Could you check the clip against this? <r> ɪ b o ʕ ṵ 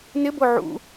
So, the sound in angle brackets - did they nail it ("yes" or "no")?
no